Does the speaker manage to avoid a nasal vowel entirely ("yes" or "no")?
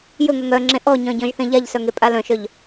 no